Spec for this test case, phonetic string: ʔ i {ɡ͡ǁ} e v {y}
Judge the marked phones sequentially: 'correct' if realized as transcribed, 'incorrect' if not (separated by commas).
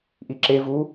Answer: incorrect, incorrect